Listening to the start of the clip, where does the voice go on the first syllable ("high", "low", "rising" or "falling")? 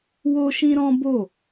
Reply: high